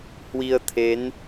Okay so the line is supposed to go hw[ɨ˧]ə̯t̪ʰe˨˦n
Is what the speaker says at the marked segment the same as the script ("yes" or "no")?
no